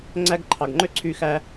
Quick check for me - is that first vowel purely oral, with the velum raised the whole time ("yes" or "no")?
yes